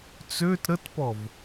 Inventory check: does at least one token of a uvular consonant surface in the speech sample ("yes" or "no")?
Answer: no